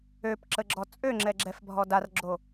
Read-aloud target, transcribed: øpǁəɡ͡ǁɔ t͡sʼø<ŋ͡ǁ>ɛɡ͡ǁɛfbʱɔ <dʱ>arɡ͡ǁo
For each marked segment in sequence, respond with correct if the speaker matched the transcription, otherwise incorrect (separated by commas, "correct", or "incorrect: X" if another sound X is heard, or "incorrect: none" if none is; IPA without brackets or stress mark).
correct, incorrect: d